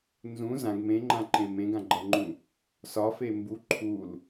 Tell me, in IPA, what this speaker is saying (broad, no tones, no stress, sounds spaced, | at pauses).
n z ũ z ã ɡ m ẽ ŋ͡ǃ ã ǃ ẽ m ẽ ɡ ã ɡ͡ǃ ʌ ŋ͡ǃ ũ | s ɒ f e m b u ǃʰ u l